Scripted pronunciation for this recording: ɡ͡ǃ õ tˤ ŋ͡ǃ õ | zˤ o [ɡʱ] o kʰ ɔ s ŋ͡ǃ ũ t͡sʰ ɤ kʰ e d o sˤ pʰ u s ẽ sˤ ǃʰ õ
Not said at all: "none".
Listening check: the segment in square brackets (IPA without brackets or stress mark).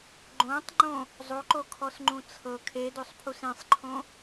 ǃ